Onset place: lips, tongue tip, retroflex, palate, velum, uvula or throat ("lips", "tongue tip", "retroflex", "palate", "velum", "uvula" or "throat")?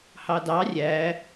throat